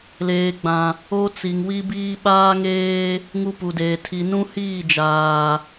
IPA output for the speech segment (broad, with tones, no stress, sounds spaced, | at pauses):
l eː˨ ɡ͡b ã˨ | o˦ t͡s i˨ ŋ w i˦ b iː˦ ɓ aː˦ ŋ eː˦ | ŋ u˦ p u˨ d eː˨ tʰ i˨ n ũ˦ h iː˦˨ d͡ʒ aː˨